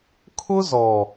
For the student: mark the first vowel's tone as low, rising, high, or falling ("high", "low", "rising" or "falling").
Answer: high